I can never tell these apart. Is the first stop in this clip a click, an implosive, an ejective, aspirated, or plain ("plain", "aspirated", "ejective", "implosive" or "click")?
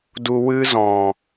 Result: plain